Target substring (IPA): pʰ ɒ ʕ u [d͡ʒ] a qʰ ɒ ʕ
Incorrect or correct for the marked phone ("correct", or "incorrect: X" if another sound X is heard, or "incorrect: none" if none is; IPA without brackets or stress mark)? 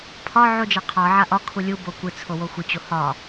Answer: correct